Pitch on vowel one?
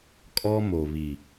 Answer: high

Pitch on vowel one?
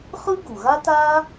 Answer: high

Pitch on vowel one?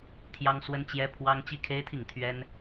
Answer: high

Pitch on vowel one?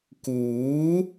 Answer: rising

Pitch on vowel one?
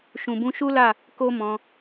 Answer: low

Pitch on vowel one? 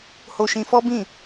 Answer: high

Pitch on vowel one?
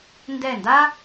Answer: falling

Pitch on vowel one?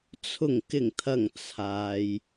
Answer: low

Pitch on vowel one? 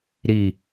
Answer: low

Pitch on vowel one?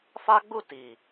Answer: high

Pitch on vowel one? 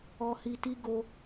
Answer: high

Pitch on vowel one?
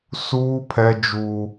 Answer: high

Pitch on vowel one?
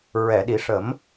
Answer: low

